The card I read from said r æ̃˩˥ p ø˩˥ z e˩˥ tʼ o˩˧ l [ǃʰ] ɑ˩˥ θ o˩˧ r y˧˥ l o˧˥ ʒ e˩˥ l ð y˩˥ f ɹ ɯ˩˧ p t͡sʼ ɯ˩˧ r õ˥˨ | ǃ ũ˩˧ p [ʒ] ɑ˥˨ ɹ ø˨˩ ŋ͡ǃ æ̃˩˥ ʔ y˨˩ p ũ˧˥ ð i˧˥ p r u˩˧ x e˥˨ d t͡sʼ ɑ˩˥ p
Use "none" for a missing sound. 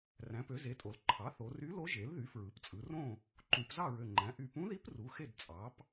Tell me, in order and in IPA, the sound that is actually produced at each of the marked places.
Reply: ǃʰ, z

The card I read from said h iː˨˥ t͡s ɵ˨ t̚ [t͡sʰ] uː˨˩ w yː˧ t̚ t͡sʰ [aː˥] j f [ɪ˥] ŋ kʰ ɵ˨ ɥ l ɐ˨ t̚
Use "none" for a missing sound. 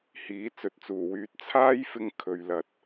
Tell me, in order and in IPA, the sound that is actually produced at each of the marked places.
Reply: t͡s, aː˥, ɪ˧

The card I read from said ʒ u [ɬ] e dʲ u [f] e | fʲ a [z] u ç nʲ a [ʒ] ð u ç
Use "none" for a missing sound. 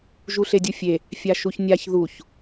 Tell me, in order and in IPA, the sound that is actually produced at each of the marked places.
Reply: ɬ, fʲ, ʃ, ç

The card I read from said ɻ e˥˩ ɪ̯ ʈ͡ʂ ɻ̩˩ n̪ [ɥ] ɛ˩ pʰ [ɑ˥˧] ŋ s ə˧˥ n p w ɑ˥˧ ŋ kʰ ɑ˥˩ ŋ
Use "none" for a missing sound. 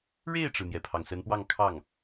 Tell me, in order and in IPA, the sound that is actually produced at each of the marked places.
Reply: j, ɑ˩

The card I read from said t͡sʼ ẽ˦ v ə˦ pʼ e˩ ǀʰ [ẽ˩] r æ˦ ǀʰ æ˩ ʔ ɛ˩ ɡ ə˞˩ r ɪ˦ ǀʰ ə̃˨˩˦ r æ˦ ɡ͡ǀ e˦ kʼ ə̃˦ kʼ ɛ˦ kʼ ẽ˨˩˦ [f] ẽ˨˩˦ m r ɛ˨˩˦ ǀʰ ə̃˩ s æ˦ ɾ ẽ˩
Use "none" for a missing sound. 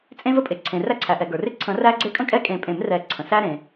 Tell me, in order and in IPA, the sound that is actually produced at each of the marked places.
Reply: ẽ˩, pʼ

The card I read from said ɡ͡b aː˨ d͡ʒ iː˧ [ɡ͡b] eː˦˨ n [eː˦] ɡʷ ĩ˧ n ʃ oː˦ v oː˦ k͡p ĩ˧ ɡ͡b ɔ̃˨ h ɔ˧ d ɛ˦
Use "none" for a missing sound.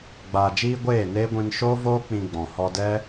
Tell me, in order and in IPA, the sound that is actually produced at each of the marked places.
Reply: ɡʷ, eː˦

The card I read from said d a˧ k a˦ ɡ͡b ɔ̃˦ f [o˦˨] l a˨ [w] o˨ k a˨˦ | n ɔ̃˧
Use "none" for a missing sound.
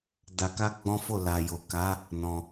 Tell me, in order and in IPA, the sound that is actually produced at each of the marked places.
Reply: o˦˨, j

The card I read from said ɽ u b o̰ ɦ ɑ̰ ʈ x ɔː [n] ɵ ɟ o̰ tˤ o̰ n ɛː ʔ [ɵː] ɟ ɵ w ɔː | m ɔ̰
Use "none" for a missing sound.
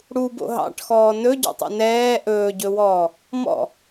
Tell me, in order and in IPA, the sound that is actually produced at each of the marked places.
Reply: n, ɵː

